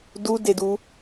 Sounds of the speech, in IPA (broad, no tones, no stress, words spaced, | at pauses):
dudedu